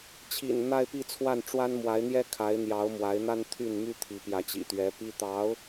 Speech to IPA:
t͡ɕʰḭ˨˩n n̪a˥˧ɪ̯pi˥˧t͡sʰwa˥˩n ʈ͡ʂwa˥nmwa˧˥ɪ̯n̪jɛ˥ kʰa˧˥ɪ̯n̪jɑ˧˥ʊ̯ mwa˧˥ɪ̯n̪a˥n t̪ʰy˥˩n my˥t̪ʰi˧˥ pjä˧˥t͡ɕḭ˨˩t̪ɥɛ˧˥pi˥ t̪ɑ˧˥ʊ̯

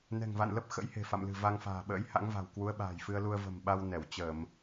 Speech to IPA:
nɛ̤˨˩ŋva̰˧˨nlə˦˥p̚ xə̰˧˥jhe̤˨˩fa̰˧˨mlɨ̤˨˩ va˧ŋfa̤ː˨˩ɓə̰ː˧˥j ha̰˧˥ŋva̤˨˩wkwu˨˦ə̯ ɓa̤ː˨˩jfɨ˧ə̯lu˧ə̯ və̤˨˩mɓa˧w nɛ˧˩wt͡ɕə˧˩˨m

